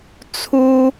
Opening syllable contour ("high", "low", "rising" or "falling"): high